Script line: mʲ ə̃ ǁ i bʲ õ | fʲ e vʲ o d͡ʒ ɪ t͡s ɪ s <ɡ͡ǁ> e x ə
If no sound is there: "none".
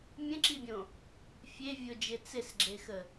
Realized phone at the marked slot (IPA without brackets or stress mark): ɡ͡ǁ